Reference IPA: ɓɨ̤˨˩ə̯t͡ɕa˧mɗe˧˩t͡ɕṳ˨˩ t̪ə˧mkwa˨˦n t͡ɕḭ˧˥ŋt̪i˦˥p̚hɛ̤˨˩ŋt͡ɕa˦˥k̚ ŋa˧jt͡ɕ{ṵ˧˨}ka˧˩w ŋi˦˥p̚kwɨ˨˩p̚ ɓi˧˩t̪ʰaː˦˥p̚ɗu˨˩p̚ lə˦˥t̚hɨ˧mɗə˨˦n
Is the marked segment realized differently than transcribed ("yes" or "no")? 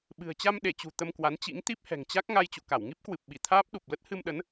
no